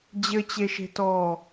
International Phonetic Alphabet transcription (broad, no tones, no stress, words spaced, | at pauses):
d͡ʑɘt͡ɕeʃe̤tɔː